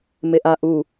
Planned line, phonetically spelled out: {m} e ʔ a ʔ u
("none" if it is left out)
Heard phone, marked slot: m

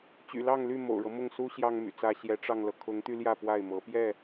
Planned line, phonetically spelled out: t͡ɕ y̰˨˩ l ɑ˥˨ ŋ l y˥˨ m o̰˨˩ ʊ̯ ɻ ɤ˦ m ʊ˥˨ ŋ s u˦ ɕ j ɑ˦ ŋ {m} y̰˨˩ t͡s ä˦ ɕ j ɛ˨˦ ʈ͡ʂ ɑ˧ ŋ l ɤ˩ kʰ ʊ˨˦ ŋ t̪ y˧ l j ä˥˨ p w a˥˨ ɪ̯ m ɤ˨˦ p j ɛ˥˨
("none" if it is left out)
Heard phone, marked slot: m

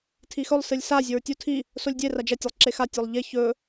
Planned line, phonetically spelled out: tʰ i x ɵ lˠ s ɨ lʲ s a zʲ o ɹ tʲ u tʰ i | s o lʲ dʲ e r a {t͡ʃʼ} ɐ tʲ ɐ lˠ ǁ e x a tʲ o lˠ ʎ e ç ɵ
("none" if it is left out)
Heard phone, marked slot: d͡ʒ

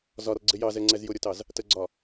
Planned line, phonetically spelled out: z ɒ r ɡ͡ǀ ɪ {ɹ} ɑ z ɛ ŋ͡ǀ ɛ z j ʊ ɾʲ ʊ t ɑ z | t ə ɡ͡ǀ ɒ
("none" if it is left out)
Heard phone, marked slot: j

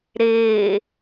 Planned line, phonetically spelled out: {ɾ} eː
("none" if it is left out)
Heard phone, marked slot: ɾ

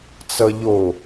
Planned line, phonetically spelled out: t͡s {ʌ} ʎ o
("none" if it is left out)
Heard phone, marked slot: ʌ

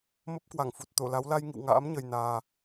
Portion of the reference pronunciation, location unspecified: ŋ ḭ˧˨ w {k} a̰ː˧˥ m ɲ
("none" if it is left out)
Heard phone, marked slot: ŋ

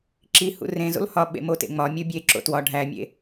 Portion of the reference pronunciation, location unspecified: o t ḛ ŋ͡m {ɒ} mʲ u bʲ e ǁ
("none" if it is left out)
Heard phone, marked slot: ɒ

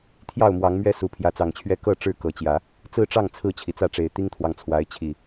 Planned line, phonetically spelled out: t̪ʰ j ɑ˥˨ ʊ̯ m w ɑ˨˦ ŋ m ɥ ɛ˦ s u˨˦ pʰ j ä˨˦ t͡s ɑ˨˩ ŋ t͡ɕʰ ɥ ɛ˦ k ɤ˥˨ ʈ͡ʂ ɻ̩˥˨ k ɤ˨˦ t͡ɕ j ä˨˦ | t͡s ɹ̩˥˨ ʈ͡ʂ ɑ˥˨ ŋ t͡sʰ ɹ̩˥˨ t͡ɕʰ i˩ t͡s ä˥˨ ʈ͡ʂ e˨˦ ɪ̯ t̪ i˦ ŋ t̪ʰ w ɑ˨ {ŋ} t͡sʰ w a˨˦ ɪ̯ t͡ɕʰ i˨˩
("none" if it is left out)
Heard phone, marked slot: ŋ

